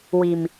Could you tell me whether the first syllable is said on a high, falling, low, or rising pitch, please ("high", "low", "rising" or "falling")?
low